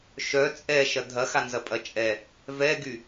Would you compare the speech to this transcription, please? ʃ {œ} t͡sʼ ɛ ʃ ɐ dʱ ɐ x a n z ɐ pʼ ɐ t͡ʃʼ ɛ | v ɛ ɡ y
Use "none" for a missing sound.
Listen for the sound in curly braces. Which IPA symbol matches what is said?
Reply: œ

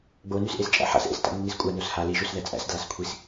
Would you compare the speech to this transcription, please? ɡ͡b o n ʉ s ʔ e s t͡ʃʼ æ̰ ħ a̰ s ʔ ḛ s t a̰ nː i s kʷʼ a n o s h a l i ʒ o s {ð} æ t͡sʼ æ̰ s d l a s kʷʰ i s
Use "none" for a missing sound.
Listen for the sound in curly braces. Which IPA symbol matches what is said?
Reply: ð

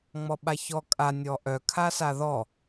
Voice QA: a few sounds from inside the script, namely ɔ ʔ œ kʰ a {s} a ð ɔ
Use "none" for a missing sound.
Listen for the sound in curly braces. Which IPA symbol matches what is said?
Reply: s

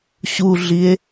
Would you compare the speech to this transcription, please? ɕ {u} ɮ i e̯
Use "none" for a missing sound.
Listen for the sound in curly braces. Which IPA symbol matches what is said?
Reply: u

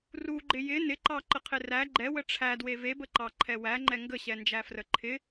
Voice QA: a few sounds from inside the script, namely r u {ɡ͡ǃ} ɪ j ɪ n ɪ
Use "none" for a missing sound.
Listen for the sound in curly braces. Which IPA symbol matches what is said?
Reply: ɡ͡ǃ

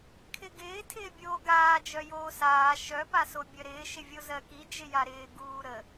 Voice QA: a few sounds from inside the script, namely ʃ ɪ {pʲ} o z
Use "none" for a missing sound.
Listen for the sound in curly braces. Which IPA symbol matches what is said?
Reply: vʲ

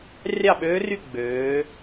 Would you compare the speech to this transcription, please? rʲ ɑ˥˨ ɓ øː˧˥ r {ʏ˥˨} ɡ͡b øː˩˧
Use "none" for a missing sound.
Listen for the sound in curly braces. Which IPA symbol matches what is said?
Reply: y˥˨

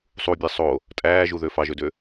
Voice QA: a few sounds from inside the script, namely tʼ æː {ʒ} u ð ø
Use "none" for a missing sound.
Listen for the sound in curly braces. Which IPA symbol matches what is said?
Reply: ʒ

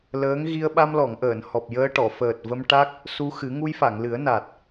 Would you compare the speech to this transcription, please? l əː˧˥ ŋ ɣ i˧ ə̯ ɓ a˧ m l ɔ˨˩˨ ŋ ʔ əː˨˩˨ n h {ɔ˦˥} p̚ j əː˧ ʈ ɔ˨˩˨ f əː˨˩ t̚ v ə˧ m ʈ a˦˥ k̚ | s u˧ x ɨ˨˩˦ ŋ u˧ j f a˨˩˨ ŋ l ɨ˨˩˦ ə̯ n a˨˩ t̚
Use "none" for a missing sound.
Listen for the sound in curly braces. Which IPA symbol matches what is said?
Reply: ɔ˨˩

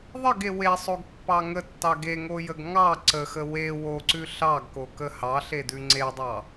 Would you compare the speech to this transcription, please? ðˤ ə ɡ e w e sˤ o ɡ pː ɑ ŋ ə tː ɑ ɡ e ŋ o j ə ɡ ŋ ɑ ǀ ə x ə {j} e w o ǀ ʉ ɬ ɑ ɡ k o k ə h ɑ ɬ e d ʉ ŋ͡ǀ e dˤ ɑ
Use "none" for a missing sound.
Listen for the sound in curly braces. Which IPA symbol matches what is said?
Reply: w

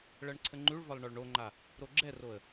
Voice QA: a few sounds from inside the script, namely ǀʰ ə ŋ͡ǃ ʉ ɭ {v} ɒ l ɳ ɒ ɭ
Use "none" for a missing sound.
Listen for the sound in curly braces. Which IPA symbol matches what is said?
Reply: v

